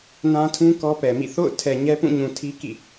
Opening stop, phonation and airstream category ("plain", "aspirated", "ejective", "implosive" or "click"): aspirated